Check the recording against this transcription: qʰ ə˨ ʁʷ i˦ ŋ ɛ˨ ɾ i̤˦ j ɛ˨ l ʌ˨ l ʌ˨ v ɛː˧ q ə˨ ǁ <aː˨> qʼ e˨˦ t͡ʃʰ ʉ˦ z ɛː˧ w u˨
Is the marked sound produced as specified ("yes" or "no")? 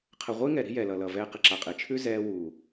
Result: no